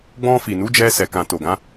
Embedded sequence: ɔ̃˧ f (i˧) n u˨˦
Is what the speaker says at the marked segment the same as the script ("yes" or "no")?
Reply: no